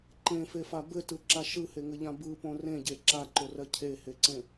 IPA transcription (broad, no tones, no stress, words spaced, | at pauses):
ǃẽfefa bɘtɯǁa ʃɯheŋɘʎã bɯpõ rẽɟe ǁaǃorɜ cʰeheǀẽ